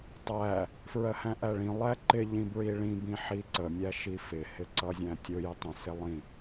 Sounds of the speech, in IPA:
tˤæ | fɹɜhæ̃ʔæɭĩ lˠæǃɪ ʎĩbɹiɭĩ bĩħiǀə mʲæʃifɪ hɪǀʌzʲæ̃tʲʊ jɪtˤə̃ sɪlˠĩ

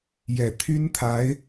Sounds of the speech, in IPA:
jɛ˨˩t̪ʰy˥nt̪ʰa˧˥ɪ̯

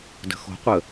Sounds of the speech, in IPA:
də̤xo̤qʷə

